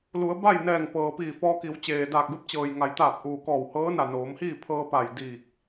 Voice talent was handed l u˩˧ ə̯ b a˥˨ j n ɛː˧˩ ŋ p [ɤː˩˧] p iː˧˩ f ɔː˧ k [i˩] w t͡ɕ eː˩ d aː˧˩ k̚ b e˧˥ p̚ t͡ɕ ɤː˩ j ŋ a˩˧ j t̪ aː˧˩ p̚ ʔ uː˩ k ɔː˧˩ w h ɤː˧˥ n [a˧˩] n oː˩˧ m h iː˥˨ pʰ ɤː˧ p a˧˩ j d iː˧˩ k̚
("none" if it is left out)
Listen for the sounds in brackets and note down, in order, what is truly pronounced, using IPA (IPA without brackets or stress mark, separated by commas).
ɤː˩, i˩˧, a˧˩